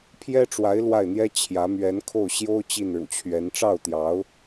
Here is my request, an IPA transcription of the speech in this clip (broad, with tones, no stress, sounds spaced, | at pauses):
pʰ j ɛ˥ ʈ͡ʂ w a˧˥ ɪ̯ l w a˥˩ ɪ̯ n̪ j ɛ˥ t͡ɕʰ j ä˧˥ m ɥ ɛ˧˥ n kʰ o˥˩ ʊ̯ ɕ j o˥ ʊ̯ t͡ɕ i˥˩ n ɻ ṵ˨˩ t͡ɕʰ ɥ ɛ˧˥ n ʈ͡ʂ ɑ˥˩ ʊ̯ t̪ j ɑ˧˥ ʊ̯